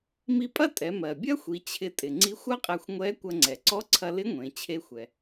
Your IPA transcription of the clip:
m i˧ pʼ ɐ˥ tʼ ɛ˩˧ m ɜ˩ bʲ ɐ˥ xʷ i˩˧ t͡ɕʰ ɪ˧ tʼ ɪ˩ ŋ͡ǀ i˧˥ xʷ ɐ˥ qʼ ɛ˧ xʷ ŋʷ ɛ˧˥ kʷ ɐ˧ ŋ͡ǀ ɛ˩ ǀ ɔ˧˥ ǀʰ ɐ˧ l ɪ˧˥ ŋʷ ẽ˩˧ t͡ɕʰ e˧ xʷ ɛ˩

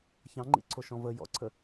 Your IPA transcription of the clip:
ç ɑ̃ ŋ͡ǃ ḭ ǀʰ o ʃ ɔ̃ v ə j ɔ̰ ǀʰ ə

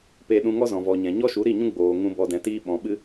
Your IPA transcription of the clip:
p e˧ ɗ ũ˧ ŋ ɔ˦ z ɔ̃˨ v ɔ˨ ɲ ɛ̃˨ ɲ ɔ˦ ʃ u˨˦ ɾ i˦˨ ɲ ũ˦ ɡ͡b oː˨ ŋ ũ˧ b ɔ˧ d ɛ̃˨˦ t iː˦ ɓ ɔ̃˨ ɓ ɨ˦

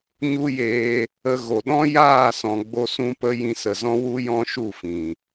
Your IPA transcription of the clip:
ɲ u˦ j eː˧ | ə˧ ɣ o˨ ɗ ɔ̃˦ j aː˦˨ s ɔ̃˨ ɡ͡b o˦ s ũ˦ p ə˦ j ĩ˧ s ə˨ z ɔ̃˦ w u˦ j ɔ̃˦ ʃ u˦˨ f ĩ˨

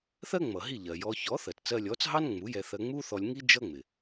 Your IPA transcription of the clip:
θ ɜ˥ ŋ͡m ʌ˩ ɦ i˥˩ ʎ ɜ˩ j ɔ˧ ç ɔ˩˥ θ ɜ˩ t t͡s ɜ˧ lʲ ɔ˩˥ t͡s ɦ ɑ˥ n ŋ͡m u˩˥ j ɛ˧ θ ɜ˧ ŋ͡m u˥ θ ɔ˧ lʲ ŋ i˥ d͡ʒ ʌ˥ ŋ͡m ɪ˩

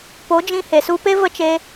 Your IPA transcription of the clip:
p o˨˦ d͡ʒ ĩ˧ h e˨ s u˧ p e˦ v ə˦ t͡ʃ e˧

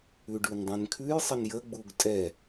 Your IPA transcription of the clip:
ʉ ɖ ʉ n dˤ ɛ̃ n kʰ ʉ j sˤ ə n j ə ɡ͡b u ɡ tʼ ɛ

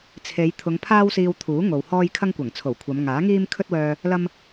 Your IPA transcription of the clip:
t͡sʰ e˨˧ j t̪ʰ ʊ˨˧ ŋ pʰ aː˥ w s iː˧ w t̪ʰ uː˨˥ ŋ o˨ w h ɔː˥ j kʰ ɐ˥ ŋ kʷ ɐ˨˩ ŋ t͡sʰ o˨˩ w kʷʰ ɐ˨˧ m ŋ aː˨˥ ŋ iː˥ m kʰ ɵ˥ t̚ w œː˧ | l ɐ˥ m

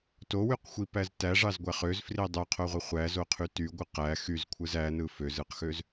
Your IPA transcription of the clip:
t o w y q xʷ i p æ z t æ ʐ ɑ z ɡʷ æ χ ø z f r i dˤ ø qʰ o ʁʷ i χʷ æ z o qʰ y t y ɡʷ ɯ q æ x y z kʷʰ ɯ z æ n ɯ f ø z ɯ q x ø z

